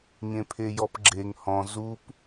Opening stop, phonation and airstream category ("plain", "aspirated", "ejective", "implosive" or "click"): aspirated